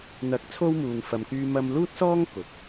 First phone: n̪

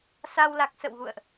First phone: s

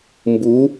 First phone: m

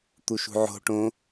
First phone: t̪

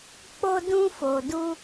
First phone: k͡p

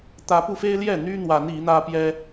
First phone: t̪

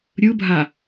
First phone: ɾʲ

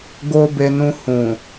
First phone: ɡ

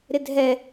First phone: ɾ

